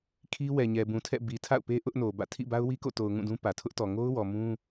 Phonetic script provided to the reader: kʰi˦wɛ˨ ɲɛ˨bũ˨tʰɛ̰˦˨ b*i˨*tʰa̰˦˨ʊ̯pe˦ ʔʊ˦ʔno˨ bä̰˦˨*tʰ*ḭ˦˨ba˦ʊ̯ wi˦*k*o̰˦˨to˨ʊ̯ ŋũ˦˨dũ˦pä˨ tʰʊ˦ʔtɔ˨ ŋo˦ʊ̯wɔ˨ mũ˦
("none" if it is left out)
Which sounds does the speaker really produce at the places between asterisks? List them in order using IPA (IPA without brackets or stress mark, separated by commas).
i˨, tʰ, k